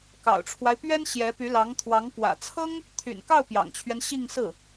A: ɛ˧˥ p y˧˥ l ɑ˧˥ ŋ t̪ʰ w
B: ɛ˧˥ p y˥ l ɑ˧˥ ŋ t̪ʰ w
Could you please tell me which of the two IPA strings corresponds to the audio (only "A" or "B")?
A